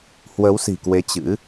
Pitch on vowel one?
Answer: rising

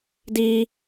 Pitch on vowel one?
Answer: high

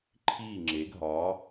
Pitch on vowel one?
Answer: falling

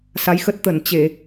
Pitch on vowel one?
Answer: rising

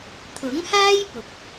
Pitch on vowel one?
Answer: rising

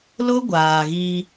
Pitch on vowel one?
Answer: high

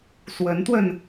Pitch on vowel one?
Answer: rising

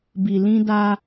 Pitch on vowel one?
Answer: low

